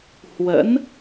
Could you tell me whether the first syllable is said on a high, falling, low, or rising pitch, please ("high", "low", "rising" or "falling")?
rising